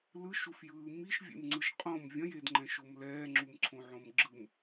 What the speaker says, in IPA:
l ɯ ʃ u f j ɯː m i ʃ vʲ ḛ m ŋ͡ǀ ɯ ʃ qʼ õ m vʲ ɐ̃ j e d ŋ͡ǃ ɛ̃ ʃ o m l ɛː ŋ͡ǁ u m ǀʰ õ ʕ õ m ɡ͡ǁ ɯ m

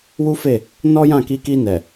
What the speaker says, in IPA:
w u˦ f e˦˨ | n ɔ˦ j ã˦˨ k i˧ k i˧ n ɛ˨

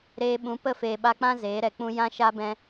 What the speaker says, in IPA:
ɾ eː˧ ɓ ũ˨˦ p ə˦˨ f eː˨ ɓ a˧ k͡p ã˦ z eː˨˦ ɾ ɛ˨ k͡p ũ˦ j ã˦ ʃ a˦ b ɛ̃˧

